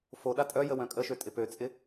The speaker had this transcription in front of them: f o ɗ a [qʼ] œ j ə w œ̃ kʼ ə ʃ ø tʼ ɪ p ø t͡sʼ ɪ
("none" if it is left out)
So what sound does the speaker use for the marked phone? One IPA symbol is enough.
tʼ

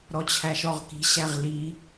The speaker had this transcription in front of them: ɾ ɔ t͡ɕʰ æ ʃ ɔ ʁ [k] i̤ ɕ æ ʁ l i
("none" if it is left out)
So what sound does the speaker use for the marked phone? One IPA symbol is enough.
k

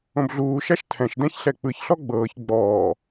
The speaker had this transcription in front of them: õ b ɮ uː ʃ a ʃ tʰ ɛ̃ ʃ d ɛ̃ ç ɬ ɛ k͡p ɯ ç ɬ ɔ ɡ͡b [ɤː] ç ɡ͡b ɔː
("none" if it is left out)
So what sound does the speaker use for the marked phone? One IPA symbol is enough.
ɤː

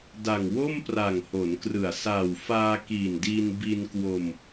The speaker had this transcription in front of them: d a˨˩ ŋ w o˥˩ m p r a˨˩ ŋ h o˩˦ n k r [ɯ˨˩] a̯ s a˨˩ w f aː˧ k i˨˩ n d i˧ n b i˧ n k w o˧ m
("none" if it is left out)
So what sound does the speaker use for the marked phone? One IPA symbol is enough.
ɯ˨˩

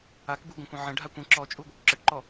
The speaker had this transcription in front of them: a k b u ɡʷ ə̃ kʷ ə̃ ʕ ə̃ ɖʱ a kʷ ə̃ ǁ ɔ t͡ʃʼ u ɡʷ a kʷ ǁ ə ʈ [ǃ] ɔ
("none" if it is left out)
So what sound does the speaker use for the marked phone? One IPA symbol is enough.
ǃ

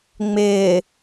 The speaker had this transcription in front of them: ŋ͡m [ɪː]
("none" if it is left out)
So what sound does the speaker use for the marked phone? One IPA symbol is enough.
ɪː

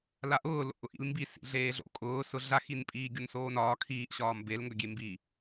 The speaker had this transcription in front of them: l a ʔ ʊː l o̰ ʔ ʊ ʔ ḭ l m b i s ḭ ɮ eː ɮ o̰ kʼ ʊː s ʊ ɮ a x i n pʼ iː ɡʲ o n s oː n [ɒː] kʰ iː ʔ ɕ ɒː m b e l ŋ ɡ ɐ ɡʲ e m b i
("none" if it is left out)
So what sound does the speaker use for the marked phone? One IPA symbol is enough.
ɒː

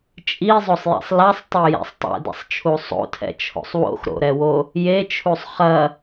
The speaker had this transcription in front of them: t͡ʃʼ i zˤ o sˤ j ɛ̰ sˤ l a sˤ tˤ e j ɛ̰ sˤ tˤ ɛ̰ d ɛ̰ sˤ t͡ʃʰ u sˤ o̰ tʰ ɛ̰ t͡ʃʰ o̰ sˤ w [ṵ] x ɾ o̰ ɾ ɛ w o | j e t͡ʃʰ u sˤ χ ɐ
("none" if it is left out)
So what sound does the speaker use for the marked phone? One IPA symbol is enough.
o̰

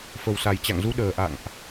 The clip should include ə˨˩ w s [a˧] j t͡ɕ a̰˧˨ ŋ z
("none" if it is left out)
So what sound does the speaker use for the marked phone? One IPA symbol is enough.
a˨˩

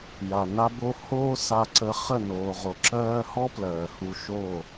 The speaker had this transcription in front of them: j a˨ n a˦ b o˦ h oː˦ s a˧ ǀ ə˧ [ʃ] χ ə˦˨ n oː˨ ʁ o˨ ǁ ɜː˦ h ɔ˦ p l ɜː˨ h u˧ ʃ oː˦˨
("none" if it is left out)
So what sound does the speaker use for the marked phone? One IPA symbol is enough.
none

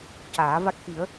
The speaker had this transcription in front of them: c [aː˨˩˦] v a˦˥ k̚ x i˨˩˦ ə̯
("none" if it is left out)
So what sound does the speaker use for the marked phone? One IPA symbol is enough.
aː˨˩˦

